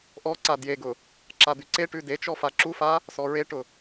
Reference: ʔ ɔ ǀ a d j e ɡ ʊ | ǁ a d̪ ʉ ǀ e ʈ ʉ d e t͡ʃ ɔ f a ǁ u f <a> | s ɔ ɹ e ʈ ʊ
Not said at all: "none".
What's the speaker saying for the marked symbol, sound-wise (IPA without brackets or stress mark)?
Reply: a